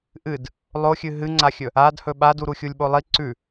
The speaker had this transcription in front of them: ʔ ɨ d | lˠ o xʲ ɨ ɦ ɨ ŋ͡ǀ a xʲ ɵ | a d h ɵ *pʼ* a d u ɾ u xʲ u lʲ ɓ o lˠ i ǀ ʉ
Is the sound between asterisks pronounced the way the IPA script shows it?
no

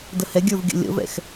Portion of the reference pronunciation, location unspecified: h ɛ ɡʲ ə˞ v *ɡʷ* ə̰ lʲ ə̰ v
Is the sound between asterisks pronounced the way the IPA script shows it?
no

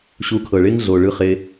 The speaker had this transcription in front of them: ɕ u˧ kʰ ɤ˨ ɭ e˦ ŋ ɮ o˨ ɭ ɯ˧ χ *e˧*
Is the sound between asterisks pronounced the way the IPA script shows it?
yes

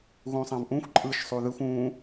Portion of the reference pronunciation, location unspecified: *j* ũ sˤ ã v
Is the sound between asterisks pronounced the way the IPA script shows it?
no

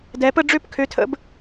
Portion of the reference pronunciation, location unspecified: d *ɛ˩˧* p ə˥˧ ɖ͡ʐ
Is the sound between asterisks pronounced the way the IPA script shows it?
yes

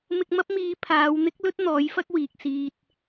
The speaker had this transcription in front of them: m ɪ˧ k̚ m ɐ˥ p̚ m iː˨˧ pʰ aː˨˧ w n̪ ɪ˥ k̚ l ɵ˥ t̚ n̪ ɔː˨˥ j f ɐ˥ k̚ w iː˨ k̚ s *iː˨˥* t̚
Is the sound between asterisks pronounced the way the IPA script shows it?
no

